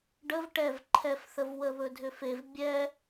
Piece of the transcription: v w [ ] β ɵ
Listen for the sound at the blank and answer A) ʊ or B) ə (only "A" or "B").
B